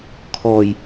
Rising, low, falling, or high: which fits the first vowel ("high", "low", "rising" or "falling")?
low